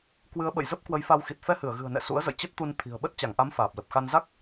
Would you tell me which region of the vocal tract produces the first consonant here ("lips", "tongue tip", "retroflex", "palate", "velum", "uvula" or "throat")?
velum